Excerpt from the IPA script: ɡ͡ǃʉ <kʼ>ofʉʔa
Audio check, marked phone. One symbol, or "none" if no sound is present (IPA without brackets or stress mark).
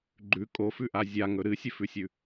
kʼ